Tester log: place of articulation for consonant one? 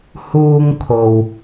glottal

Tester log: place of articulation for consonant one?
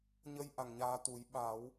palatal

